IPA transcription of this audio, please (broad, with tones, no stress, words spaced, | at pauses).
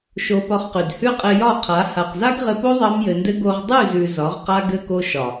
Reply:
ʃo˧pɒ˧χqʉ˨d hʉ˦qʼɘ˧jɒ˦˨qʰa˨˦ ha˨qza˦ɡʁɘ˧po˦ ðˤɑ˦mjɘ˧ndɘ˦ ɡo˧ʁdˤʉ˦˨zʉ˨ zɒ˨˦ʁqa˦ɡɘ˦ko˦ ʃɒ˨